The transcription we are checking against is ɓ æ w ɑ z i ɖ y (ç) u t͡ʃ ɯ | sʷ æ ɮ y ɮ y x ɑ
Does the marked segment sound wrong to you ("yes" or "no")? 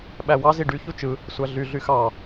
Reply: no